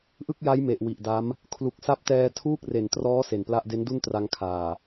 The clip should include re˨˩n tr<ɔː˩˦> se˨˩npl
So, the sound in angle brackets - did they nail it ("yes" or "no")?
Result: no